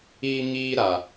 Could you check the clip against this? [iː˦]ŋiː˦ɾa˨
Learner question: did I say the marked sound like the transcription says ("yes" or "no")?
yes